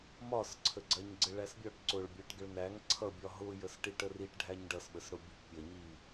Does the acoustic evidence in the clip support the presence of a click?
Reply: yes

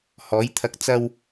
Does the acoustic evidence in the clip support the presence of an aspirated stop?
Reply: yes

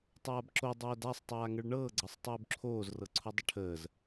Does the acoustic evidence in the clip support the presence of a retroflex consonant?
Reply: yes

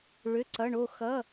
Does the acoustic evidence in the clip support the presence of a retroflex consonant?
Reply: yes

